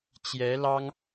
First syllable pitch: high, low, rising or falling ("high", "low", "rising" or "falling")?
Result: rising